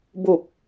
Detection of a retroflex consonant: absent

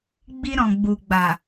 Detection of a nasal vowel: present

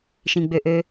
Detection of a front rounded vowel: present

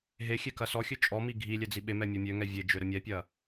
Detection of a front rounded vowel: present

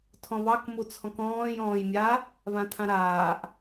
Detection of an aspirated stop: present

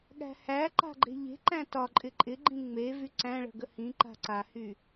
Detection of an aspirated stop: absent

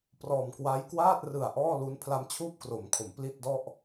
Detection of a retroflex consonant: absent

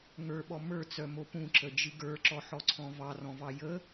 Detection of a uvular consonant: absent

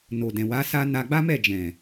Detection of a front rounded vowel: absent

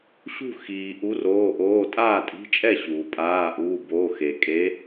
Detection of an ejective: present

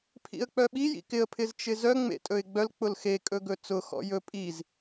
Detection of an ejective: present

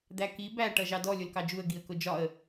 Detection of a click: absent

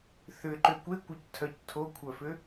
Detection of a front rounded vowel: present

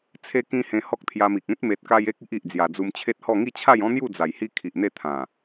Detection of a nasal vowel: present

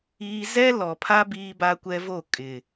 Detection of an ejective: present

